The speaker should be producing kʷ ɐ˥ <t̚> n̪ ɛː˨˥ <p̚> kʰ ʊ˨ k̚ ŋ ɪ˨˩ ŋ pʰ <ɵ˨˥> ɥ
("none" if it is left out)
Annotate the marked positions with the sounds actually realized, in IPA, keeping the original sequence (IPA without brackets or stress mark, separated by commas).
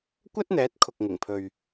t̚, t̚, ɵ˨